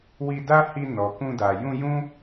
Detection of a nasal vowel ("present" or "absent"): present